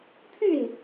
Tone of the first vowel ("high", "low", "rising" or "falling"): falling